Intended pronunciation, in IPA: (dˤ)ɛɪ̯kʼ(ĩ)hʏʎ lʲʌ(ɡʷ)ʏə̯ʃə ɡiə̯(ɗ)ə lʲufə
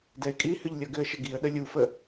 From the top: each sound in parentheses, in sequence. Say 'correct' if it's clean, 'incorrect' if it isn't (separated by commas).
incorrect, incorrect, incorrect, correct